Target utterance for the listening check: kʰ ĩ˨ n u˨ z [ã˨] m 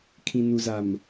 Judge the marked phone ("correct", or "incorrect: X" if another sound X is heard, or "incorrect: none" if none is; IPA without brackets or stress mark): incorrect: a˨